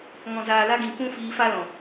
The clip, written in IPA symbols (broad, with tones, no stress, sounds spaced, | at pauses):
ŋ ɔ̃˨ z aː˨ l a˧ ɡ ĩ˨ k ũ˦ f iː˧ f a˦ l ɔ̃˨